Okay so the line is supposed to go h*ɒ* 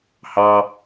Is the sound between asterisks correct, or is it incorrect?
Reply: incorrect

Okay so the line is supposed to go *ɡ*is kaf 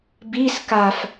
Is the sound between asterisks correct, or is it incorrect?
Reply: incorrect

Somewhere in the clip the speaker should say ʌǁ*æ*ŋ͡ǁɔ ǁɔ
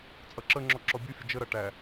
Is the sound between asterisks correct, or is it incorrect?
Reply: incorrect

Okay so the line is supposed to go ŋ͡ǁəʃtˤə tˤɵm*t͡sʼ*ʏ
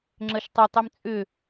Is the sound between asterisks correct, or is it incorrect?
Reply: correct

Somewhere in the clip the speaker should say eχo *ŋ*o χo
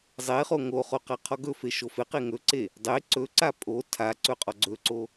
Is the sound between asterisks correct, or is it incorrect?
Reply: correct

